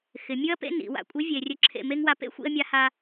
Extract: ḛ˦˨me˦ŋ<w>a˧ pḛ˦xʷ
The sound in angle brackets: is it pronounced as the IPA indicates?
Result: yes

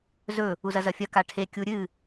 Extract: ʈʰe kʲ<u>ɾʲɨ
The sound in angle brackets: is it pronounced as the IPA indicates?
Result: yes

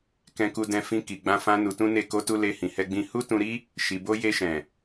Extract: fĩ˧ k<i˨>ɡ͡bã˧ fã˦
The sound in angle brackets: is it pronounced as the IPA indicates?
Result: yes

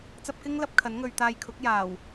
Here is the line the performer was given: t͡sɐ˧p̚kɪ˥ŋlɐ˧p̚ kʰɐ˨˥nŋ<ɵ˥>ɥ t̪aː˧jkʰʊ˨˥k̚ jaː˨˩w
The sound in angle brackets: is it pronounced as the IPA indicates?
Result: no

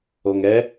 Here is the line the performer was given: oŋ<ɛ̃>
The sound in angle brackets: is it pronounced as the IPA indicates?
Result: no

